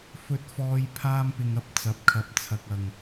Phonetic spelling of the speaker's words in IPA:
f ɵ˧ t̚ f ɔː˧ j pʰ aː˧ m p ɪ˨ ŋ ɐ˧ p̚ t͡s ɐ˨˥ p̚ kʰ ɐ˨˥ p̚ t͡sʰ ɐ˨ k̚ ɐ˨˩ ŋ

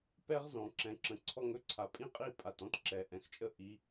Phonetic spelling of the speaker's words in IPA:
p ɛ˦ ʁ z ɔ̃˨ ǁ ɛ̃˨ ǁ ə̃˨ ǀʰ ɔ˧ ŋ ɵ˦ ǀʰ a˨ pʼ ĩ˦ qʼ i˦˨ pʼ a˨ t ɔ̃˦ t ǁ ɛ˨ ʔ ɛ̃˨ x t͡ʃʼ ə˦ ʔ i˨˦

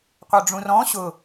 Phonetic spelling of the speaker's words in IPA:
qʷ œ ɖ͡ʐ ũ r ɔ̃ ɕ ʊ

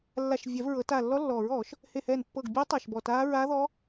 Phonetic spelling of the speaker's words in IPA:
lː a˧˩ ʃ vʲ ɛ˨˩˦ v ɹ ɤ˨˩˦ t a˧˩ lː ɔ˦˥ lː ɔː˨˩˦ ɹ ɔː˨˩˦ ʃ | h e˧˩ h ɛː˧˩ n pː ɤ˧˩ ɡ bʲ ɯː˦˥ tˤ a˧˩ ʃ b ɔ˧˩ t aː˦˥ ɹ a˦˥ ð ɔ˦˥

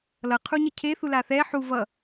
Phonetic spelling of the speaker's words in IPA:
l ʌ qʰ u ɲ ʌ cʰ e θ u l a θ ɛ ħ u v ʌ

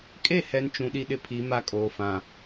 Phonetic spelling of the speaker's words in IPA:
kʼ e˦˨ h ɛ˨ n t͡ʃ ũ˨ ɗ i˦ ɗ ɪ˦ pʰ i˨˦ m a˦ kʼ oː˨ f ã˨

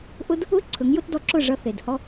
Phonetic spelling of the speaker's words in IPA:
ʔ ʊ˦ d | ʊ˦ ǀʰ ɵ˨˦ ŋ j ʊ˦ t d ɔ˧ ǁ ʊ˦˨ ʐ ʌ˧ θ e˨ d h ɔ˧

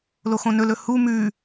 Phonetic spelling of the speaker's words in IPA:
l o x õ n ɵ l ɵ h u m ʉː

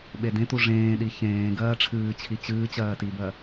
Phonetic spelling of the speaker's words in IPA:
ɓ e d ẽ t u ʐ ẽː ɗ i ç ẽː ɡ ɜː ʈ͡ʂʰ ɨː t͡ɕʰ i t͡ɕ ɨː t͡ɕ ɜː t i b ɜ

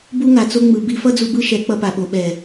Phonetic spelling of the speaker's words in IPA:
b u˧ ŋ a˨ t͡s o˧ ŋ͡m ɯ˨ b i˧ f ʌ˦ d͡z u˧ b ɯ˦ ʃ ɛ˨˦ k͡p ʌ˧ p a˨ ɓ o˨ ɓ ɛ˨

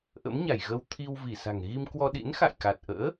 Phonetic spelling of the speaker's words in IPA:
ʔ ə̰˧˥ m ɲ a˧˩ j ɣ ə˧ w t̪ʰ i˧ w v i˧˩ s a̤˨˩ ŋ ɣ i˧ m k w ɔ˧ ɗ ḭ˧˥ n x a̰˧˨ j k a˨˩ t̚ ʔ ə̰ː˧˥

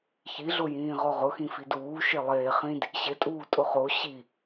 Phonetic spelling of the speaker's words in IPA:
ç i ɮ ʊ j ĩː ʁ ɔ ʁ ʊ x ĩ f i d uː ʃ e lˠ eː χ ĩ d | ɕ ɪ tʼ uː tʼ ʊ χ o ɕ i

